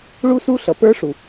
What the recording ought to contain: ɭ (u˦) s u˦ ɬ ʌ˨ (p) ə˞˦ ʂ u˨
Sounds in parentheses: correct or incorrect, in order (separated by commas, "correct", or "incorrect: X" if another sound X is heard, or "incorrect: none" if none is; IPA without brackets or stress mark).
correct, correct